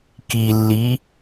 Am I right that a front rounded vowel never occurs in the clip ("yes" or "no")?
yes